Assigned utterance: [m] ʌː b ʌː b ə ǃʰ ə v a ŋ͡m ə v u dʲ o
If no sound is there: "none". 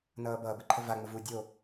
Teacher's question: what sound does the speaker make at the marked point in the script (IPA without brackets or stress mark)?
n